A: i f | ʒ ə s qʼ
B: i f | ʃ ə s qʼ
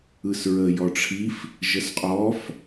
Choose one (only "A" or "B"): A